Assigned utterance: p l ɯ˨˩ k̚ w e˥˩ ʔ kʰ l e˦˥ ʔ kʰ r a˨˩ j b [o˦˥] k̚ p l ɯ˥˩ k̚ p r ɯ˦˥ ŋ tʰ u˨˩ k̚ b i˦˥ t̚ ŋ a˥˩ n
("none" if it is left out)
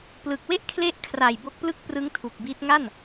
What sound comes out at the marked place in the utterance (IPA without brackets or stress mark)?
o˦˥